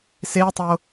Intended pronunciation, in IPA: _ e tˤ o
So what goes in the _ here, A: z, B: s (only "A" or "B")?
B